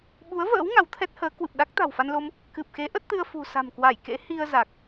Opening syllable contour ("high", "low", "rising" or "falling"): rising